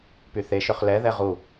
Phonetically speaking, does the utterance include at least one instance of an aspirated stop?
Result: no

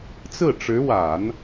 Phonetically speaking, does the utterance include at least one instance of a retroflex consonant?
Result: yes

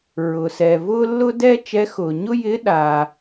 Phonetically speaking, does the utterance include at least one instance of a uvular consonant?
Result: no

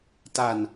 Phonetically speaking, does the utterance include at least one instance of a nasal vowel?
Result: no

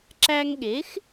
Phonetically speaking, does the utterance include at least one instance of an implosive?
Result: yes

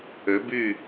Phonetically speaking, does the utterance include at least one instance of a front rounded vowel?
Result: yes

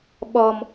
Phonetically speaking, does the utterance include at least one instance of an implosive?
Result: yes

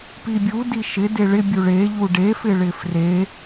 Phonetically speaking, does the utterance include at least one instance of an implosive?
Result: no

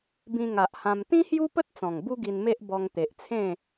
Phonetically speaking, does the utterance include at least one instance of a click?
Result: no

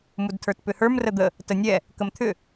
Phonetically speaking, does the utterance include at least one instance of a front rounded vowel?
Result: yes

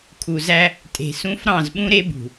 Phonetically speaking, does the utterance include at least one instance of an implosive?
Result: yes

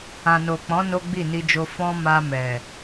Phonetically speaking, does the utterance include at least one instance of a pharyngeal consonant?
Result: no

